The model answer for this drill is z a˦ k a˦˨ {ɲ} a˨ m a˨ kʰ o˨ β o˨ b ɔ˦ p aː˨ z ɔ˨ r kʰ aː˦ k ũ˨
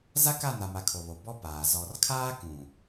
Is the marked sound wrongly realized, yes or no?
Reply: yes